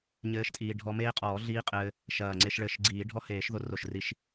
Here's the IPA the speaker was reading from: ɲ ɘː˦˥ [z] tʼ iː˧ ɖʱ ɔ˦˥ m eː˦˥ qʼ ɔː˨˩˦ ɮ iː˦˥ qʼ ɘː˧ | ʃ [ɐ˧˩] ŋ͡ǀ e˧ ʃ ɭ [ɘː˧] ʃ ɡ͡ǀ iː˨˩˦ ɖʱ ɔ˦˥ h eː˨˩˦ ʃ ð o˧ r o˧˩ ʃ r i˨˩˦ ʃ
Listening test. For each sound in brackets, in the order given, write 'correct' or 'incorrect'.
incorrect: ʃ, incorrect: ɐː˧˩, incorrect: ɘː˧˩

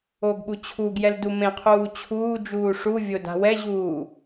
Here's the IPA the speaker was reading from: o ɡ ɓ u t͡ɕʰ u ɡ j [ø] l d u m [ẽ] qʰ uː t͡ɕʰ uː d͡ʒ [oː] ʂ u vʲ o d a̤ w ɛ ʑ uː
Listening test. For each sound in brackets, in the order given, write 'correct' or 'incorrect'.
incorrect: ɛ, correct, incorrect: uː

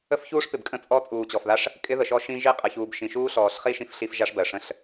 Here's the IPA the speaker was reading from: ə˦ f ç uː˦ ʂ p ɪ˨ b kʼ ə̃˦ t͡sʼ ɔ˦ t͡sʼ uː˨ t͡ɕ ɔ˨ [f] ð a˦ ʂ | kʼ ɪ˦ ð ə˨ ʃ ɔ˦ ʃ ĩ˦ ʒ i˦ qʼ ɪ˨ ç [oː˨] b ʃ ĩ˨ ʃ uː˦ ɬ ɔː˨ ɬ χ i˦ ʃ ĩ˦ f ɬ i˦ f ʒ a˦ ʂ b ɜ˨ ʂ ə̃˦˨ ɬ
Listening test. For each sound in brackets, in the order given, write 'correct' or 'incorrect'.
correct, incorrect: uː˨

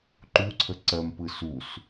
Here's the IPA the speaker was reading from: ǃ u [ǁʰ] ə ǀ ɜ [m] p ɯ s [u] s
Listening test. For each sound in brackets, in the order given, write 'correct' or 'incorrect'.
incorrect: ǀʰ, correct, correct

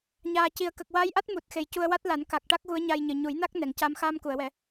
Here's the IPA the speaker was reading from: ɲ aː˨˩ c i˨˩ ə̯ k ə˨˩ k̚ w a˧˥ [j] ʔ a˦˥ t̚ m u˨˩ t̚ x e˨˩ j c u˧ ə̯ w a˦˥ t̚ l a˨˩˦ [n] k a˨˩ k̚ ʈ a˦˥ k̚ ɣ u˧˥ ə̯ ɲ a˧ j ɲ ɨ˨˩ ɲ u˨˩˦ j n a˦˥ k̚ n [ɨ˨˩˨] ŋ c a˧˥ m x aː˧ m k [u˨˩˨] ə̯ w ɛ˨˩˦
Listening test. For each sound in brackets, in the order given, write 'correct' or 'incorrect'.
correct, correct, incorrect: ɛ˨˩˨, correct

